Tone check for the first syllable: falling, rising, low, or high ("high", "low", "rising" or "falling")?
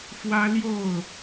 high